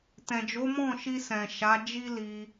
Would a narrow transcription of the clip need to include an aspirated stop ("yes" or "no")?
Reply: no